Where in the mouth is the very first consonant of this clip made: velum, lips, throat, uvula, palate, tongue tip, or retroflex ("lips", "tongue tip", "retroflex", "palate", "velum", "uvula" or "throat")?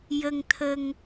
palate